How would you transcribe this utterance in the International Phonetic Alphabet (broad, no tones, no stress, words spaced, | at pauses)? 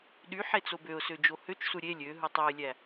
ɗy ħet͡sobøʊ̯sø d͡ʒohøt͡ʃsu ɾʲe lʲø ɦɯtˤoɪ̯lʲæ